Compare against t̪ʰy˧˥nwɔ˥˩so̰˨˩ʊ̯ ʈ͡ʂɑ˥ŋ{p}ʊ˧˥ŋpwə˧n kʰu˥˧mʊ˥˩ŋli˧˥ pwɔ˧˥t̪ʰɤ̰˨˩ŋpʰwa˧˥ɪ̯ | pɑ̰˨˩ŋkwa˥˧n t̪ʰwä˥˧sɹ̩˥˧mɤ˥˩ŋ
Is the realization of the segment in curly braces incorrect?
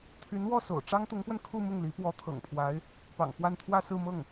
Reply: yes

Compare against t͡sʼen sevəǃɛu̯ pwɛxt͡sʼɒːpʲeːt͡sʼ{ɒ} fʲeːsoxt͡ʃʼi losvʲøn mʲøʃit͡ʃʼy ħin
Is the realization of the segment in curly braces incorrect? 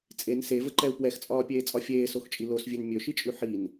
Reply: no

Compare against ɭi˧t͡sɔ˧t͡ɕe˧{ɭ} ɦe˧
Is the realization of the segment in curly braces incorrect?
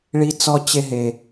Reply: yes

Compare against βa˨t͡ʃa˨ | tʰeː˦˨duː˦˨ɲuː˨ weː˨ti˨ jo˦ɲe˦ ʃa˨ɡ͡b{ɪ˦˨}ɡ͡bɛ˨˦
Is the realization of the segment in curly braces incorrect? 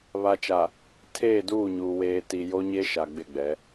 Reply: no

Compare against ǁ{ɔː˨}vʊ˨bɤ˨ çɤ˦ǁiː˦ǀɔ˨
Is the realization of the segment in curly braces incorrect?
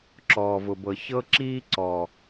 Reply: no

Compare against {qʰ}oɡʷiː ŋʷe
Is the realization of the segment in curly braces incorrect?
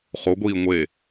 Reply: yes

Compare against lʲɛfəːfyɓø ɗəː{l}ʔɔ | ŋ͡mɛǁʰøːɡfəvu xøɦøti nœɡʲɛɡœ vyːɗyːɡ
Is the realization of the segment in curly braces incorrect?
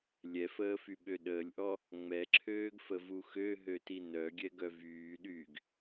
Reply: yes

